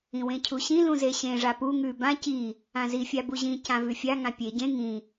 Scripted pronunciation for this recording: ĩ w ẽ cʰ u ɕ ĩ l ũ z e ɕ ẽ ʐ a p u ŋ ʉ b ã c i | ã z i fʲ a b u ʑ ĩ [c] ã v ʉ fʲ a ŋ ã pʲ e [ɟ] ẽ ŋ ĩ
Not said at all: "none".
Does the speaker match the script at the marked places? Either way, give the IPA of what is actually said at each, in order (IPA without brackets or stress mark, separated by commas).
c, ɟ